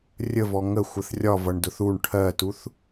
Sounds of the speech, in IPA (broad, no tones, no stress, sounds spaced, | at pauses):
rʲ ə v ɔ ŋ ə xʷ ə θ rʲ ɒ v ʌ ɳ d ʊ θ u ɳ ʈʰ ɜ t u θ